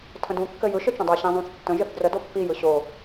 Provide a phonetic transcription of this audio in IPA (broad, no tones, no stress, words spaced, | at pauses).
tʰə̃dũ kːɘjɯʃ ɘt͡ʃə̃dˤu ɕĩzˤũθtːə̃ ʒɘθdrəd opːi jɯɕo